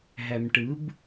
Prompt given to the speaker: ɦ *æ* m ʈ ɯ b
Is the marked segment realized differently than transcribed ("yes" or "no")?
no